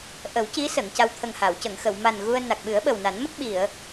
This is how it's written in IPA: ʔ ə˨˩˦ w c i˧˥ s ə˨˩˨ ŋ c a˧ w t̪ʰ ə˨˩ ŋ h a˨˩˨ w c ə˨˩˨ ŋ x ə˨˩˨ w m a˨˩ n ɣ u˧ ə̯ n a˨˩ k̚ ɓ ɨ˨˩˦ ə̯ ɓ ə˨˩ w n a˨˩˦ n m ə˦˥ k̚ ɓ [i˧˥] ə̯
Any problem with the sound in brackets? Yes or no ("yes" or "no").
yes